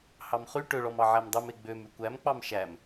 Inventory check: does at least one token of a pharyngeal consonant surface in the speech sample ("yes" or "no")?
yes